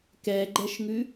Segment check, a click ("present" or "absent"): present